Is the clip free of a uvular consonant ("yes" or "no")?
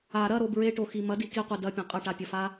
no